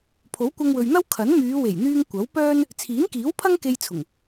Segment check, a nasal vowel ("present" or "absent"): absent